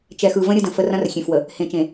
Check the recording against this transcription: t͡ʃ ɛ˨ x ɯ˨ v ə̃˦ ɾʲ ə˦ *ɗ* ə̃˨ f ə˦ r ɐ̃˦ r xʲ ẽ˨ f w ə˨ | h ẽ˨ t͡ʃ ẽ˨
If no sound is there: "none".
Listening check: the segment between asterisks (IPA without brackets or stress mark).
d